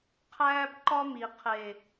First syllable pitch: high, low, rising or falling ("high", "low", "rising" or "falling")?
high